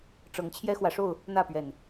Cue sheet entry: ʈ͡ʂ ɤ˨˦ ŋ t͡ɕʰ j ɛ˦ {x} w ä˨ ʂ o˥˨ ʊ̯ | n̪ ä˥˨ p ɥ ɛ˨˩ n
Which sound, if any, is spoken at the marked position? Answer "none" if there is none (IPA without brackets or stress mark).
x